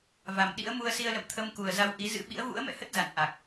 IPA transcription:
v a˨˩ m ɗ ḭ˧˥ ə̯ m u˧ ə̯ s i˧ ə̯ l ə̰˧˨ m t̪ʰ ə˧ m k u˨˩ ə̯ z a˧ w ʔ i˨˦ z ɨ̰˧˥ ɓ ḭ˧˥ ə̯ v ṵ˧˥ ə̯ m ɛ̰˧˨ h ə˦˥ t̚ z a̰˧˨ n ʔ a˨˩ k̚

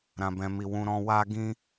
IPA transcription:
ɾ ã˧ b ɛ̃˧ m i˧ w ũ˧ ɾ ɔ̃˧ w a˦ ɡ ĩ˦

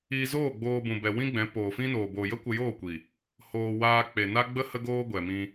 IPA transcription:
iː˧ z oː˦˨ ɡ͡b oː˧ b ũ˨ b ɛ˨ w ĩ˦ ɡ͡b ɛ̃˨˦ p oː˨ f ĩ˦ n oː˨ b oː˨ j ə˦ kʷ ə˧ j oː˦˨ kʷ i˨ | h oː˧ w aː˧ k͡p e˨ n a˦ ɡ͡b ə˦ h ə˦ ɡ oː˦ ɡʷ ɛ˨ m ĩ˧

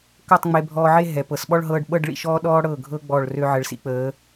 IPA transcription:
k ɤ˥˧ tˤ ŋ͡m e˧ bʱ ɔː˧ ʕ e˥˧ ɦ ɛ˩˧ p ɤ˩˧ s ɓ ɔ˥˧ ɭ ɦ ɤː˧ ɖ ɓ ɤ˥˧ ɖ ɭ ḭ˧ ʃ ɔː˥ ɗ ɔː˥ ɽ ɤ˧˩ ɡʱ ɤ˧ ɡ͡b ɔ˧˩ ɭ r ø˧ ʕ ə˩˧ ɭ s ḭ˩˧ k͡p əː˩˧

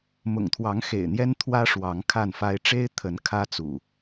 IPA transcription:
m ʊ̰˨˩ ŋ t̪ʰ w ɑ˨˦ ŋ x ḛ˨˩ ɪ̯ n̪ j ɛ˦ n t̪ʰ w ä˦ ʂ w ɑ˨˦ ŋ kʰ a˥˨ n f a˦ ɪ̯ ʈ͡ʂ e˦ ɪ̯ t̪ʰ ə˨˦ n kʰ ä˦ t͡s ṵ˨˩

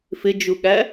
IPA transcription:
f ɪ d͡ʒ u ɠ æ

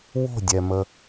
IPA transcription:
w o̤ dʲ ɛ m ə

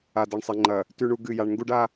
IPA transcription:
a˨ d ɐ˨ ɳ sˤ e˨ ŋ͡ǃ ɐ˨ | t ʉ˨ ɳ u˨ ɡ ɨ˦˨ j a˦ ɳ ŋ ɡ u˦ ɖ a˦

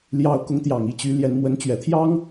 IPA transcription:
l j ɑ˧˥ ʊ̯ k ʊ˧˥ ŋ t̪ j ɑ˨˩ ŋ i˥˩ t͡ɕ y˧˥ l j ɛ˧˥ n m w ə˧˥ n t͡ɕ ɥ ɛ˨˩ t̪ʰ j ɑ˥ ŋ

